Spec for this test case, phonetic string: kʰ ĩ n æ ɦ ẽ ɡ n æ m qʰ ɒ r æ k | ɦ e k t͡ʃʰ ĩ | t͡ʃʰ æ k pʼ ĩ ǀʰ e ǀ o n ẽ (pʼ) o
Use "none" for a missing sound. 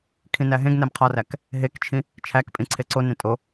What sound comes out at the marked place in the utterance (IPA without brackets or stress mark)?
tʼ